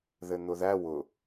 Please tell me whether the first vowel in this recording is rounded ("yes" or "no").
no